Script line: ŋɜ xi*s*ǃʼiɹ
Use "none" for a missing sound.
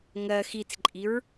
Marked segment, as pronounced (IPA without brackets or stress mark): t͡s